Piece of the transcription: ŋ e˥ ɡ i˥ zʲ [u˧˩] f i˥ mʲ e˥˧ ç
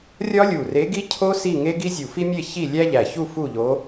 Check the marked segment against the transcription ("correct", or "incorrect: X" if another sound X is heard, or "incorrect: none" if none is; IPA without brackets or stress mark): correct